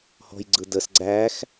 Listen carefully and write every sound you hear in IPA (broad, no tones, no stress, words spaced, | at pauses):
hɔ̤jɡ͡ǀɯdəs ɡ͡ǀæx